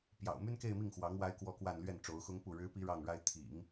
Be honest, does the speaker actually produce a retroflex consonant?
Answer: yes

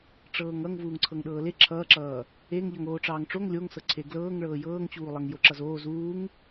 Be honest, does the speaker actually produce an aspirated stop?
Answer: yes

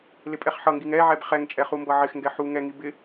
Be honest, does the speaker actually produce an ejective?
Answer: yes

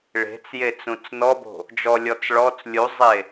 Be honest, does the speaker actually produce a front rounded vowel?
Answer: no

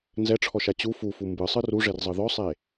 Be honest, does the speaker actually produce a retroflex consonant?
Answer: yes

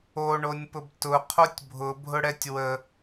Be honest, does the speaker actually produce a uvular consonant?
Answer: yes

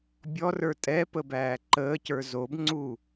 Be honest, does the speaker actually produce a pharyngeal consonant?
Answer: no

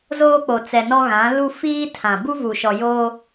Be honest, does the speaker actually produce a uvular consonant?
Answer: no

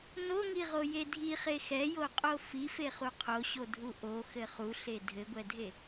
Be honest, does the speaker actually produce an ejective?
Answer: yes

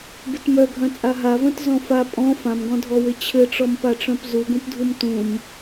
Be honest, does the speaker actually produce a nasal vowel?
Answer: yes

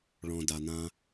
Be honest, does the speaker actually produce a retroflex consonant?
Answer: yes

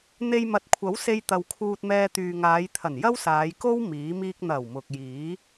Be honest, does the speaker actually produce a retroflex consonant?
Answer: no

